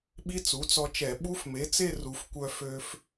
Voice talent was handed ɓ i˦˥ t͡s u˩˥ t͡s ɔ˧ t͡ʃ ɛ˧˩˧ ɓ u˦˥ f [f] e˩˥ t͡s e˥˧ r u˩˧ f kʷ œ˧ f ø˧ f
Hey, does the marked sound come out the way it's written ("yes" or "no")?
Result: no